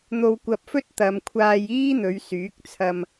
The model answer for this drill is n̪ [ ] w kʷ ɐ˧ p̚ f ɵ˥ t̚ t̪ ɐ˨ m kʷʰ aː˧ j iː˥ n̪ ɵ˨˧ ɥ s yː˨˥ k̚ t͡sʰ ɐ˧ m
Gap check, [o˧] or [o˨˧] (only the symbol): o˧